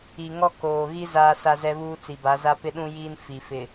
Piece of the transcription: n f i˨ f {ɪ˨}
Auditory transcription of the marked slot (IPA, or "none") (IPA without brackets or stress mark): ɪ˨